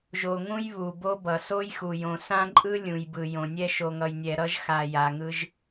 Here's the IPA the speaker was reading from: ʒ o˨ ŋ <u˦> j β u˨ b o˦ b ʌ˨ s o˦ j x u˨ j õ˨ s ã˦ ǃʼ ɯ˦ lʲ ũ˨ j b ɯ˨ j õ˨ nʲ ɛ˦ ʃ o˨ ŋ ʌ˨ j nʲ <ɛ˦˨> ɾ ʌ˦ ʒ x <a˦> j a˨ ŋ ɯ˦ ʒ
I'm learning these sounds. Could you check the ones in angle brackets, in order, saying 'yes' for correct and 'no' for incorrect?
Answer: no, no, no

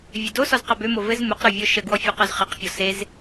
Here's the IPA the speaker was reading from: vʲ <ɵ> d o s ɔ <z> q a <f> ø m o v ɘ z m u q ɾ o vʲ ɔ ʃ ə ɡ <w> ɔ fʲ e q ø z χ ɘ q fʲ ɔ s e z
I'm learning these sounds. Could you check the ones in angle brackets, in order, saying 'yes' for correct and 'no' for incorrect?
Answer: no, yes, no, yes

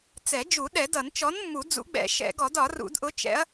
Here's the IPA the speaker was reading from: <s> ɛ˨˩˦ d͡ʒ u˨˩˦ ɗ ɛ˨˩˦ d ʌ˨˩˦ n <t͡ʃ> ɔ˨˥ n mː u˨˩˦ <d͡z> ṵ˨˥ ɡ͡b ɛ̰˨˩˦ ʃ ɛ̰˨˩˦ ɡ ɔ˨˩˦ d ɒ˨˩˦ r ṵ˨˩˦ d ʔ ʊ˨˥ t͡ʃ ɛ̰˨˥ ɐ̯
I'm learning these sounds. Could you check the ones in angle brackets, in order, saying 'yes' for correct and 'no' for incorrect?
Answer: no, yes, yes

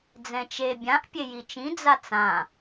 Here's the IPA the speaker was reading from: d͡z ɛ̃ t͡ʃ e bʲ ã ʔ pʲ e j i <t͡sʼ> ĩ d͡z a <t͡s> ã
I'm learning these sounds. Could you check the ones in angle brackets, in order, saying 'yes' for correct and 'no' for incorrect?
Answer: no, yes

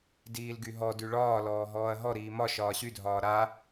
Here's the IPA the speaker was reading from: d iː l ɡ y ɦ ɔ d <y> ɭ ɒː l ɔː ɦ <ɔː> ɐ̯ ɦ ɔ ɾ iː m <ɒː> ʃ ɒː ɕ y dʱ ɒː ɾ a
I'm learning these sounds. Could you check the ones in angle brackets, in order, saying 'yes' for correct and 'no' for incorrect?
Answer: yes, yes, no

